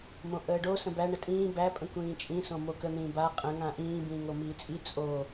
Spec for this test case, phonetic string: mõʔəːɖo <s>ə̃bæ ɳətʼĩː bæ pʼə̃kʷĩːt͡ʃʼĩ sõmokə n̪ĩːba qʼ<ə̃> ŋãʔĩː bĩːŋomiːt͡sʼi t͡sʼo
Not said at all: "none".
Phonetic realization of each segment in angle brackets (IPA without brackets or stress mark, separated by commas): s, ə̃